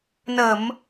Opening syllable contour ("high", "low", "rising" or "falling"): low